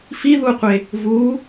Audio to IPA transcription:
f i ð u qʷ e | v u

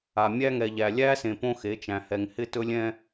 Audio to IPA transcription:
a˨ mʲ æ˦ ŋ ɛ˨ ʎ æ˨ lʲ æ˦ s ẽ˨ p õ˦ x e˨˦ t͡ʃ æ̃˨ h ɛ˨ ŋ h ɪ˦ t ɵ˦ lʲ ɛ̃˦

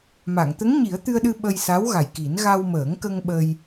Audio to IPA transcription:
m a˨˩˨ ŋ t̪ ə˧˥ ŋ ɲ i˨˩˦ ə̯ t̪ ɨ˧ ə̯ ɗ ɨ˧ ɓ ə˧ j s a˧˥ w ɣ a˨˩ j k i˨˩˦ n ɣ a˧ w m əː˨˩˦ ŋ k ə˧ ŋ ɓ ə˧ j

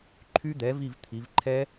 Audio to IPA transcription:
ǃʰ y˦˥ d̪ ɛ˩˥ v i˦˨ v t̪ʰ i˩˧ v ǃʰ ɛ˦˥

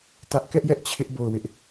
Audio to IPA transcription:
t ä˦ ʔ k ɛ˦ ʔ j ɛ˦ ʔ t͡ɕʰ ɪ˦ ʔ b o˦˨ ʊ̯ w ɪ˦ ʔ

